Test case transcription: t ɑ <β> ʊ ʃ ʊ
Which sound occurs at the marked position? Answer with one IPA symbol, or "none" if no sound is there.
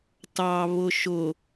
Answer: β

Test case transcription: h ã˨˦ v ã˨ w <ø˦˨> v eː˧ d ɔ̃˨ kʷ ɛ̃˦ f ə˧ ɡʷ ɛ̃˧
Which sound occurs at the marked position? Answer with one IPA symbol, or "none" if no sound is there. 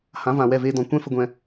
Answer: ɛ˦˨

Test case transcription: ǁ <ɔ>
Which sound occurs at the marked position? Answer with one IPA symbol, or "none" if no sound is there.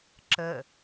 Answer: ə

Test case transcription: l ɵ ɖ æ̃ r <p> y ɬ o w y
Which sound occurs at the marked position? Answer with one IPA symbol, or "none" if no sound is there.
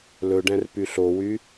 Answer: p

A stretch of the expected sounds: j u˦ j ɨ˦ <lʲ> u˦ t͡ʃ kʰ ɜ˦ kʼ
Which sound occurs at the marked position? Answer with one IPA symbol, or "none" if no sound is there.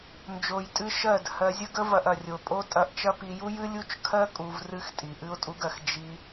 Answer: lʲ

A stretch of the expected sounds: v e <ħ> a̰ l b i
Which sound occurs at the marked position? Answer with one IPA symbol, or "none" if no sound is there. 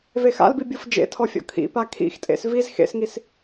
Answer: x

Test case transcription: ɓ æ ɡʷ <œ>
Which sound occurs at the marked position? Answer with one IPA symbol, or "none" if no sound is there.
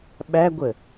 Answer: ə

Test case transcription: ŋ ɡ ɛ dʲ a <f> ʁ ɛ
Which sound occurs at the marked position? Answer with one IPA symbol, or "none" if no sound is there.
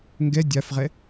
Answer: f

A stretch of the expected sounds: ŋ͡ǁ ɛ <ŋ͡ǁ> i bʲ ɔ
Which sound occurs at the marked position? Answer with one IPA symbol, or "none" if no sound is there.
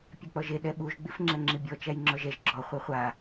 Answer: ŋ͡ǁ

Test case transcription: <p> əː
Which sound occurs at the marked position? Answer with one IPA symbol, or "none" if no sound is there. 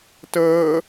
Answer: t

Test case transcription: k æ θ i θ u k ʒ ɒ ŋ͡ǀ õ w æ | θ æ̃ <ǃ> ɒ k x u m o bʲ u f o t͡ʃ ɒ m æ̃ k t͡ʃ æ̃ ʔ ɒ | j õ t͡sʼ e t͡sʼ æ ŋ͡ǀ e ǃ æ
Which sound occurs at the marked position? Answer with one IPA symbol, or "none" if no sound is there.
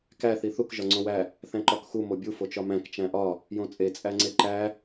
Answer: ǃ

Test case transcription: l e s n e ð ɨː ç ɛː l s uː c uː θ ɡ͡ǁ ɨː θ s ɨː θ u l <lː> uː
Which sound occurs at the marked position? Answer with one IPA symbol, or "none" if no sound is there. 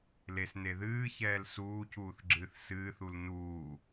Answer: n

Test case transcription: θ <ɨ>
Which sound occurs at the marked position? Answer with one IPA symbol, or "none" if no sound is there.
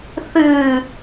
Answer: ɨ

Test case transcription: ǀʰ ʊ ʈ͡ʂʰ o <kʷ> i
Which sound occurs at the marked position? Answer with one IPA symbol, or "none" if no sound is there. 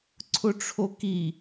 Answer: k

